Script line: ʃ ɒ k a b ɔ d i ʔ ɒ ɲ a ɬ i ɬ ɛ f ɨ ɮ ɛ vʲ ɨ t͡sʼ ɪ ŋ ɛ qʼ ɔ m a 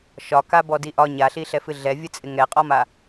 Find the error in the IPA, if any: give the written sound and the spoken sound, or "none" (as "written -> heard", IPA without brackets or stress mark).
none